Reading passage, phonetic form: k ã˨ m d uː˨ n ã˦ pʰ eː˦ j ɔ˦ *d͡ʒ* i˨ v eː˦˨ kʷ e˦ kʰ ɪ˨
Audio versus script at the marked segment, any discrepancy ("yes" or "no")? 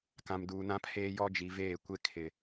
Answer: no